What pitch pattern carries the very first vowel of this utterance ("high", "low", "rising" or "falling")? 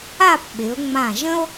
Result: falling